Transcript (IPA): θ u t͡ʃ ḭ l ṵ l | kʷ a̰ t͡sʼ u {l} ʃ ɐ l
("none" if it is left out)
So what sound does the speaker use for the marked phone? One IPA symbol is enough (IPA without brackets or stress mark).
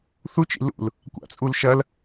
l